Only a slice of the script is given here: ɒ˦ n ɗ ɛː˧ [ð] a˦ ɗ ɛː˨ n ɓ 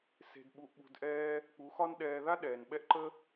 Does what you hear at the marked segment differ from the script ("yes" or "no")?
no